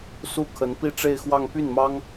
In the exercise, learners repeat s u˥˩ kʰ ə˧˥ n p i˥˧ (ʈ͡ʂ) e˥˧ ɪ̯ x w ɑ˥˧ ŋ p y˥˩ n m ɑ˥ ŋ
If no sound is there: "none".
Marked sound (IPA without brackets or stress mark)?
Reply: ʈ͡ʂ